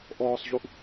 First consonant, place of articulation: glottal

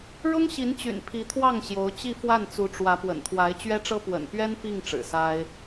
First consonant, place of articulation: retroflex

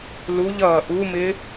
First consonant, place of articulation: alveolar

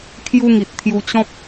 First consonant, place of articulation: velar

